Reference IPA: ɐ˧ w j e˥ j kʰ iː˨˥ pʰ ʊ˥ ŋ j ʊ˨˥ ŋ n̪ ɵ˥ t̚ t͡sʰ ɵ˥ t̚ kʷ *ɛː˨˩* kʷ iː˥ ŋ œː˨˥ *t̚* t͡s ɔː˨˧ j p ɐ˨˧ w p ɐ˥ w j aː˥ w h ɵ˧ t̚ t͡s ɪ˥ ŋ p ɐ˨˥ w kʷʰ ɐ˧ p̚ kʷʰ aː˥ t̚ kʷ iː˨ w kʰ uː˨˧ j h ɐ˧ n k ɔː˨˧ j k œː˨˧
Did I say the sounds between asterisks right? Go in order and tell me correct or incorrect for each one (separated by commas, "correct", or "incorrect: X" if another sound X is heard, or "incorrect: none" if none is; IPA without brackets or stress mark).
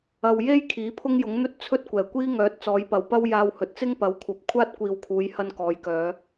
correct, correct